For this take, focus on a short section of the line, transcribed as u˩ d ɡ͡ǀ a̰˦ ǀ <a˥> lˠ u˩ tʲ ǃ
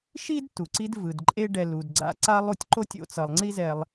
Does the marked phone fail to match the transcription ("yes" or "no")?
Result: no